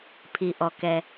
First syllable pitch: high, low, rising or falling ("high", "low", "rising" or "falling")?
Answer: low